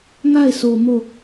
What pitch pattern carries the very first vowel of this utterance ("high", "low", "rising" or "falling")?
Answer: falling